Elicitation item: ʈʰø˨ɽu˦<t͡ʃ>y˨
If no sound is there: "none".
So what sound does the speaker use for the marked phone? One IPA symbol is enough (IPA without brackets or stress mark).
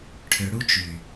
t͡ʃ